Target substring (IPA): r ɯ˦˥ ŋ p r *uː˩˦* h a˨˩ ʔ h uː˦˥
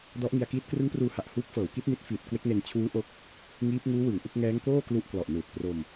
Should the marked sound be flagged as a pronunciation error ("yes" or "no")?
yes